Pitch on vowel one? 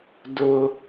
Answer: high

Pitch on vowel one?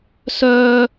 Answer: high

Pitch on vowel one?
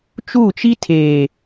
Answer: falling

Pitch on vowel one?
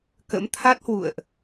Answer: rising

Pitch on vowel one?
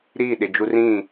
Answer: falling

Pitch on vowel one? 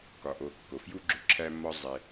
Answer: low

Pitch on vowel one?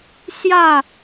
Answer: falling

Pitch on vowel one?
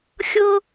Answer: high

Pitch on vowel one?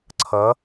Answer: rising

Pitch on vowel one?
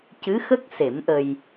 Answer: rising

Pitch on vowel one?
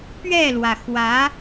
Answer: falling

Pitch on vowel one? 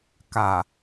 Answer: low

